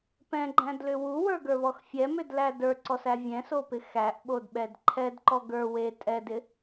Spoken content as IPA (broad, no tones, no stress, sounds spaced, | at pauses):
p ɛ̃ ɡ͡ǃ æ̃ d l ʏ w u w ə˞ ɡ ə˞ β ɔ x fʲ ɛ m ʏ d l æ d ə˞ ǀ ɔ s æ vʲ ɛ̃ s o p ɪ x æ ʔ ɓ o d ɓ ɛ d ǃʰ ɛ d ǃ ɔ ɡ ə˞ w e tʼ ɛ d ɪ